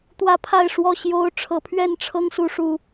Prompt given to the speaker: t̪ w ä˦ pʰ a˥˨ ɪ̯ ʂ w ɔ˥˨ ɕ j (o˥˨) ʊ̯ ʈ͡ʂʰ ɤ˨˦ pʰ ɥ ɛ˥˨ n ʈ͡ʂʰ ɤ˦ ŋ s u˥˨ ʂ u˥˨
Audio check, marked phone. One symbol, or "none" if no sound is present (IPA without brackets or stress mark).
o˦